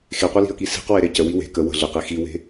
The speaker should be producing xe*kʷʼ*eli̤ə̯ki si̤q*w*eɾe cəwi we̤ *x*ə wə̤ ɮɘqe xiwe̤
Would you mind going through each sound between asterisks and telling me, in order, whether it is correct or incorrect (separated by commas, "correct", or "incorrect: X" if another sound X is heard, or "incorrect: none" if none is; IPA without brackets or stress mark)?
incorrect: qʷ, correct, incorrect: k